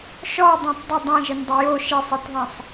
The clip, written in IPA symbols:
ʃɔdˤɛ̃tˤ dˤə dˤɛ̃ʒəndˤə jo ʃesˤitðˤɛ̃sˤ

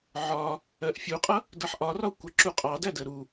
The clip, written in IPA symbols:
ʕɒ | ɜʔfʲuqʼʌ | dʌħʔɒrɒ kʷəǁu qʼɑdæ dəɾu

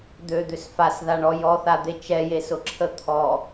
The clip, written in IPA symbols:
d̪ød̪ʏs fasðaɳɔ jɔθad̪e t͡ʃɛjesʊǁʰə t̪ʰɔ

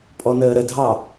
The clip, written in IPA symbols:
pʼɔnəːɾədʱɑ

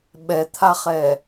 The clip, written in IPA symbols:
ɓɛt̪ʰaχɛ

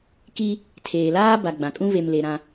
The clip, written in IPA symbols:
ki˦ | tʰeː˨laː˦ ba˨ ɡ͡bã˨kʼũ˦ βe˨mle˨ ɾã˦

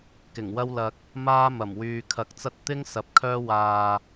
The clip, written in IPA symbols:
kɪ˨˩ŋwɐ˥wlɐ˧k̚ | maː˥mɐ˨˩m wyː˨kʰɐ˨˥k̚t͡sɐ˥t̚ t̪ɪ˥ŋ sɐ˨˥p̚kʰœː˥ waː˨

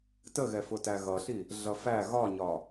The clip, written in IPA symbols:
təɣɛfʊtæ ɣʌɬi | ɮʌfæ ɣɒɲɒ

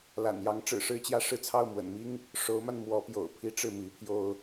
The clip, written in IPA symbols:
la̰˨˩njɑ˧˥ŋ ʈ͡ʂɻ̩˨˩ʂɻ̩˥˧t͡ɕjä˥˧ ʂɻ̩˥˧t͡sʰɑ˥˩ʊ̯mwə̰˨˩nmi˥ŋ | ʂo˧˥ʊ̯ma˧n mwɔ˧˥pjo̰˨˩ʊ̯pʰi˥ ʈ͡ʂɻ̩˥˩mi˧˥pʰjo˥ʊ̯

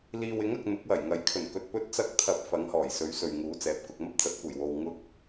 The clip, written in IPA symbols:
liː˨wɪ˨˥ŋɐ˨k̚ n̪ʊ˨˥k̚wɐ˨˩jŋɐ˨˥j kʰɵ˨˩nkɵ˨t̚ pɵ˧t̚t͡sɐ˧k̚t̪ʰɐ˨˥p̚ fɐ˨˥ŋhɔː˨˩j sɵ˨˥ɥsɵ˨ɥ ŋuː˨˥t͡sɛː˨˥p̚kʊ˧k̚ mɐ˥p̚t͡sɐ˨˥t̚kʷɐ˨˩j wo˨wŋʊ˥k̚

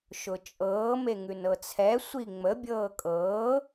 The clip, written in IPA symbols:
ʃʊt͡ʃʼɤː meŋʉnɤt͡sʰɛ sʷiŋ͡mə bʲɤːkʼɤː

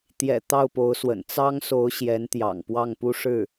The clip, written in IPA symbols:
t̪jɛ̰˨˩ t̪ɑ˥˩ʊ̯po˧˥ʊ̯swə̰˨˩n t͡sɑ˥ŋso˧˥ʊ̯ ɕjɛ˧˥nt̪jɑ̰˨˩ŋpwɑ˥˩ŋpu˥ ʂɻ̩˥˩

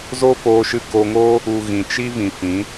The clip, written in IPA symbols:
zo˦foː˧ʃɨ˧ ko˧ŋo˦ | u˨ ɣĩ˨t͡ʃi˦vĩ˨ fĩ˨˦

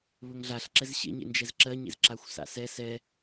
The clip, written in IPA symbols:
βɵŋɮaɬ ǁɛzɕḛɲḛnd͡ʒɛz ǁɜɲḛz ǁaxʷsa̰sɛ sɛ

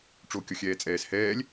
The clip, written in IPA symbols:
ʈ͡ʂokʲɔxʲɛːt͡sʼɛːs hɛːlʲ

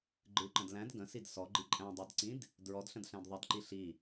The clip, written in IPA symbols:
ɡ͡ǃɨǃə̃d læ̃d ɡə̃sid sɔɡ͡ǃi ǃʼæ̃dˤædǀĩd | dɹɔdɬə̃dɬæ̃d ðˤədǃi ɬi

